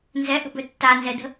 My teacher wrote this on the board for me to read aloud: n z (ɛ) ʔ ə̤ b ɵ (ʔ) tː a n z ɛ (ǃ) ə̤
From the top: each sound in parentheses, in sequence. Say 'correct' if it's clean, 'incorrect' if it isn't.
correct, incorrect, incorrect

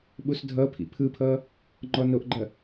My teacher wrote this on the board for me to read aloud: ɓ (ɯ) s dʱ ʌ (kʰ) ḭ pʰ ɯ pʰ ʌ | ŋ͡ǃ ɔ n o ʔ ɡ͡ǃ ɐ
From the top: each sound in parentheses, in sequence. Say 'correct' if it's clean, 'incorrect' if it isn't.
incorrect, incorrect

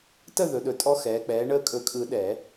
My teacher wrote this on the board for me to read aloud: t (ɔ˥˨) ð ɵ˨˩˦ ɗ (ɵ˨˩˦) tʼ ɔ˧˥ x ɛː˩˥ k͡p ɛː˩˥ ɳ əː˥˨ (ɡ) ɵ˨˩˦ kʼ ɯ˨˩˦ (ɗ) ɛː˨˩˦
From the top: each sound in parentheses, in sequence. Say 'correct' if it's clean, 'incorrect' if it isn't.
incorrect, incorrect, incorrect, correct

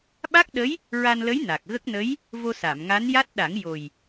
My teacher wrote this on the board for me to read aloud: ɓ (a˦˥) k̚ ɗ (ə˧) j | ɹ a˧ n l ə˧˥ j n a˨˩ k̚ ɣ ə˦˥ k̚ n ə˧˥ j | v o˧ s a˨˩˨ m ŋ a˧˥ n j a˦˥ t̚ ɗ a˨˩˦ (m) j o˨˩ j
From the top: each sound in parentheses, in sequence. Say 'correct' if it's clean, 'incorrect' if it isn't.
correct, incorrect, incorrect

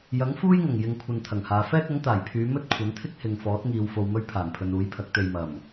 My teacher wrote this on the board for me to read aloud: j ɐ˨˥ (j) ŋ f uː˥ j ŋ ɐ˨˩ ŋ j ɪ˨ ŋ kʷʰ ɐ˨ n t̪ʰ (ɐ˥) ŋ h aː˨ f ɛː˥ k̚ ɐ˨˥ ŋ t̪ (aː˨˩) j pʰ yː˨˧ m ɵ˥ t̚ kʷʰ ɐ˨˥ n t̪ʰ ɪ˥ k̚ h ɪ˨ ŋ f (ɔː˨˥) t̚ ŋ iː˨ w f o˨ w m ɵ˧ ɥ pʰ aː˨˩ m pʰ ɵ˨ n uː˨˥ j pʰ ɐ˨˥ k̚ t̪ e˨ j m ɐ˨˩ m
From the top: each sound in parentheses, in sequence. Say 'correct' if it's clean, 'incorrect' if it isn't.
incorrect, incorrect, correct, correct

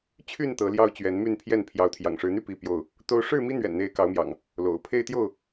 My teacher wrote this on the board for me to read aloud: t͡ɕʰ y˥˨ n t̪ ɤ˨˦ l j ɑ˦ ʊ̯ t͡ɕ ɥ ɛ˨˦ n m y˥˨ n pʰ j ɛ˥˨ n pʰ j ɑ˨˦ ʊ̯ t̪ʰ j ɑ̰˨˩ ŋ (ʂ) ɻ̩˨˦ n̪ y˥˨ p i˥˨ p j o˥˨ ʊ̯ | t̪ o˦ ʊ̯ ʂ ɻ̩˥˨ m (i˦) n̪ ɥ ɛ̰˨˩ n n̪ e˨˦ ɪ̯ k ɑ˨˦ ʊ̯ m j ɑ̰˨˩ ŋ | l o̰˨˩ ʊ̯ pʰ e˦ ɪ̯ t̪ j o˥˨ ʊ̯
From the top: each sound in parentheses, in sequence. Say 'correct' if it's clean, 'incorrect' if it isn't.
correct, correct

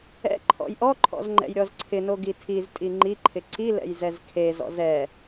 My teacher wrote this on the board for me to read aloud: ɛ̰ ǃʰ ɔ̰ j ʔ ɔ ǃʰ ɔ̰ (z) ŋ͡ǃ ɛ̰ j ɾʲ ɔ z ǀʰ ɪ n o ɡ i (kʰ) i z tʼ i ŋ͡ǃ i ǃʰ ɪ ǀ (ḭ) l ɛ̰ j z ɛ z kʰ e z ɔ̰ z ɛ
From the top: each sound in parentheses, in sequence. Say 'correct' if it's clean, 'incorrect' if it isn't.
correct, incorrect, incorrect

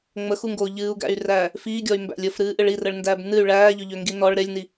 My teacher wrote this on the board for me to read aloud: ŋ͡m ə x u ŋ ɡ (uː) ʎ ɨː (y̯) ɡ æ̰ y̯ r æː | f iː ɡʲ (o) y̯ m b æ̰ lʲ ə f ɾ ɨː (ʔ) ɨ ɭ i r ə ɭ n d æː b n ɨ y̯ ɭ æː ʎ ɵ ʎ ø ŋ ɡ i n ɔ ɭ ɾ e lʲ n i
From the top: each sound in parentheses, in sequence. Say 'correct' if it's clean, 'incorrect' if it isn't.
incorrect, incorrect, incorrect, correct

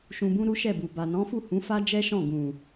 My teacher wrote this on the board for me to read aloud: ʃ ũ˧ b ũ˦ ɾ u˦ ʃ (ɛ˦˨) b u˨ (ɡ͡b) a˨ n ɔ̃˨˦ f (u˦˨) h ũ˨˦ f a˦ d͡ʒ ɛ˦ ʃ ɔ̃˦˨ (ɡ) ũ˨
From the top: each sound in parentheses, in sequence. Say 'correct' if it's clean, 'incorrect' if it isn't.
correct, incorrect, correct, correct

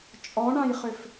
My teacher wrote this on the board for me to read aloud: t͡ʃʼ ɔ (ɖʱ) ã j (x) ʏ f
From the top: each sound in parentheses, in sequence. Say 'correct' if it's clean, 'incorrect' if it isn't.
incorrect, incorrect

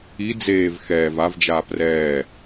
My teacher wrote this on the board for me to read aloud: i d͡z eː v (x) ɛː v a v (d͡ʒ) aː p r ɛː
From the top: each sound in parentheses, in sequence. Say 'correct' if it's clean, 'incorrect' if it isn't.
correct, correct

